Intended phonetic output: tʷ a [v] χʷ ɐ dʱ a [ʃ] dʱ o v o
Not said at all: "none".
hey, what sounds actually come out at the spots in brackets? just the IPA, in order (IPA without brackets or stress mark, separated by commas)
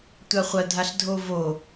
none, ɬ